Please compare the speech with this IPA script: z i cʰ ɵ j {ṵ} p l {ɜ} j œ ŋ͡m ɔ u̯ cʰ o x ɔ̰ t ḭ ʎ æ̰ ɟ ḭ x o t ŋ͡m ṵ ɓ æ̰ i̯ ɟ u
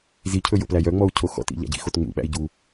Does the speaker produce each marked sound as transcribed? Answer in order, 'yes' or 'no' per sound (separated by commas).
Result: no, no